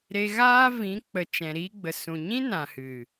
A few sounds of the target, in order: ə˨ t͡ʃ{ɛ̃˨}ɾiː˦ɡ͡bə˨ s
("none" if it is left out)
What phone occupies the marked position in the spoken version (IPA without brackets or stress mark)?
ɛ̃˨